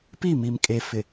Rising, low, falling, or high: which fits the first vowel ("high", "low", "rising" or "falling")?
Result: falling